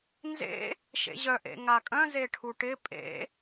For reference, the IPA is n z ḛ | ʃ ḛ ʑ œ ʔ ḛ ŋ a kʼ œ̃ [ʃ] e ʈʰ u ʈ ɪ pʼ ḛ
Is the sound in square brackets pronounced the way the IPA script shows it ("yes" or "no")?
no